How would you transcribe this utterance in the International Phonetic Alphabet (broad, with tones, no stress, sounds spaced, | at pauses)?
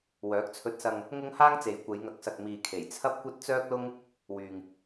w œː˨˥ k̚ t͡sʰ ɵ˧ t̚ s ɐ˧ ŋ | ŋ ʊ˥ ŋ h aː˥ ŋ t͡s e˨ j kʷ e˨˧ j ŋ ɐ˨ k̚ s ɐ˨ k̚ m iː˨ kʰ e˨˩ j t͡sʰ ɐ˥ p̚ kʷ ɐ˥ t̚ t͡s œː˥ k̚ l ʊ˥ ŋ | w yː˨ ŋ